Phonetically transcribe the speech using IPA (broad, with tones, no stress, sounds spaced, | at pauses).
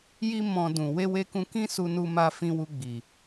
j i˦ m ɔ̃˧ d ũ˨ w e˧ w e˧ k ũ˧ k ĩ˦ s u˧ n u˧ m a˧ f ĩ˧ w u˧ ɡ͡b i˨